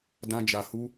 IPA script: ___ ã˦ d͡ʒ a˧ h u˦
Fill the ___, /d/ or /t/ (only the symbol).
d